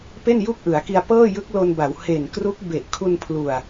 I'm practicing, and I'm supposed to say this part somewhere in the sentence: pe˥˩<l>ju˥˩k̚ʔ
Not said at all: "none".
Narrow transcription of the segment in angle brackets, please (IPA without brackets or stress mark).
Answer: n